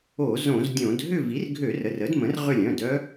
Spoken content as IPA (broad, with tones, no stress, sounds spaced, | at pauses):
o˧˩˧ z õ˧˩˧ z dʲ õ˧˩˧ d ɦ ʏ˦˨ v i˩˥ r ɡʱ ø˧˩˧ r ə˩˧˩ r ə˩˥ d m ə̃˩˥ r ʁ ʏ˦˨ lʲ œ̃˩˧˩ d œ˧˥